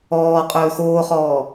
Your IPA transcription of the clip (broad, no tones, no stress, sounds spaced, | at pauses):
ɔː qʼ ɵː x oː χ ɔː